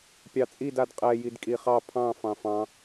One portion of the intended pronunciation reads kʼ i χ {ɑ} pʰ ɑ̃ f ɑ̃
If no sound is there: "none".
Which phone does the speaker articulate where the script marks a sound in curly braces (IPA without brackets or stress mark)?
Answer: ɑ